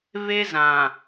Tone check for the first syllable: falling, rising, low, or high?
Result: high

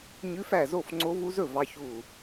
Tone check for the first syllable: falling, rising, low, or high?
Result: rising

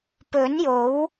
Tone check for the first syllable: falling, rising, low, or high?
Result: rising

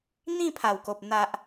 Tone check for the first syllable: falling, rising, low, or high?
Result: falling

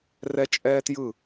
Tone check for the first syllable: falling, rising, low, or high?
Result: high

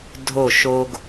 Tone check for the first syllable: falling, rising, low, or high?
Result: falling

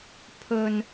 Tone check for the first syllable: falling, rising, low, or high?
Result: low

